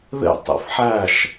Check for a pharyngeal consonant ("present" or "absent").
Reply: present